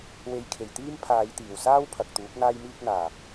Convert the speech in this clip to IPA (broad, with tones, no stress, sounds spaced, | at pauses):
w e˨˧ j kʰ e˨˩ j t̪ iː˥ m pʰ aː˨˧ j t̪ iː˨˩ w s aː˥ w pʰ ɐ˨ k̚ t̪ uː˨˥ k̚ n̪ aː˥ j m iː˥ k̚ n̪ aː˨˩